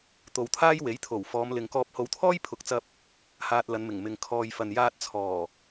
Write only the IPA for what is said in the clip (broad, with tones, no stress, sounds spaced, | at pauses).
t̪ o˨ w t̪ʰ aː˥ j w e˨˥ j t̪ʰ o˨˩ w f ɔː˨˧ m l ɪ˨ ŋ k ɔː˧ p̚ h o˨˧ w t̪ʰ ɔː˥ j pʰ ʊ˨˥ k̚ t͡s ɐ˧ p̚ | h aː˧ t̚ l ɐ˨˧ n m ɪ˨˩ ŋ m ɪ˨ ŋ kʰ ɔː˨ j f ɐ˨ n j aː˧ t̚ t͡sʰ ɔː˨˩